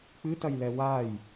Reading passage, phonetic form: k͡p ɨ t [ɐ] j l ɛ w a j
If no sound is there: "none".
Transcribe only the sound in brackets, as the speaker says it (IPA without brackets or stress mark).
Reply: ɐ